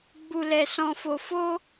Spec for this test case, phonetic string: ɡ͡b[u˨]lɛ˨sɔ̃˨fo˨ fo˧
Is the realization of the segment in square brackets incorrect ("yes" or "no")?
no